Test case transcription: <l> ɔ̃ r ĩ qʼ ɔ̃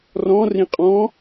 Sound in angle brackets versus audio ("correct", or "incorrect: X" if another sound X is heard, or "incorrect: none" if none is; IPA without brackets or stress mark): incorrect: r